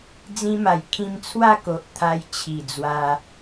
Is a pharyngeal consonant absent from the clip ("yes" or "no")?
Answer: yes